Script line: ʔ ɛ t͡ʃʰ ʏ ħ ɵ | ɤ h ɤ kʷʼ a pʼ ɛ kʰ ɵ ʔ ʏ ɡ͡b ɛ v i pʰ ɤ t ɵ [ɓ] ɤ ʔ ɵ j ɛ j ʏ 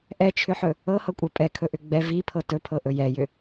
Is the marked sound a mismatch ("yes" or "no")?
yes